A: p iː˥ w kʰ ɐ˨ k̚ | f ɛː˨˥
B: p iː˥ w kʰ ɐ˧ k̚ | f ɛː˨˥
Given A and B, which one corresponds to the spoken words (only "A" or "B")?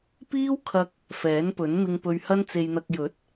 B